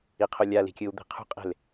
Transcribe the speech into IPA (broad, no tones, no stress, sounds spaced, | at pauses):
i qʰ o lʲ a l i̤ kʲ ɯ w d̪ i̤ qʰ ṳ qʼ e̤ l